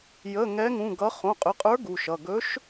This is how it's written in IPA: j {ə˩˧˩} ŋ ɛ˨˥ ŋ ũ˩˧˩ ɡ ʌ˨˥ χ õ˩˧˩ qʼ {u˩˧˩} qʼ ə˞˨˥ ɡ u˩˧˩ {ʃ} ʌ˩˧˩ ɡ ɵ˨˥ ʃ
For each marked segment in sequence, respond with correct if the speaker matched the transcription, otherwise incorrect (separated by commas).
correct, incorrect, correct